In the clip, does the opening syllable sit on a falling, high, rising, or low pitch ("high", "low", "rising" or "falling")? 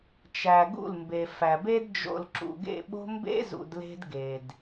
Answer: low